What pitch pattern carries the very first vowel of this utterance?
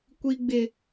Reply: high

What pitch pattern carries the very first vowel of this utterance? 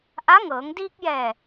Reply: rising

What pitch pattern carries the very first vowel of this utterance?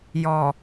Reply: low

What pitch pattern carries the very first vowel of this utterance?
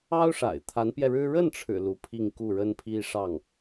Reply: high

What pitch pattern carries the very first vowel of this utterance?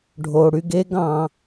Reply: low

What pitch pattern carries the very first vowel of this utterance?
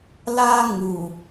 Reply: high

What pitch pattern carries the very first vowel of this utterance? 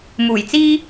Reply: low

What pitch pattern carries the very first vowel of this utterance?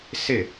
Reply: falling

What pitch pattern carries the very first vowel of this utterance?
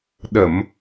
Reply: low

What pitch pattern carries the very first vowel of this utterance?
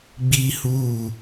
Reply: high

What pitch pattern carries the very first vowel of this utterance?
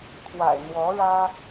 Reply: low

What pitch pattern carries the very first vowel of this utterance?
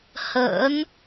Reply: rising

